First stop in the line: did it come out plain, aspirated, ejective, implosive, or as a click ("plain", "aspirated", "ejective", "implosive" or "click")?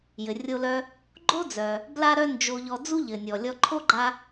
click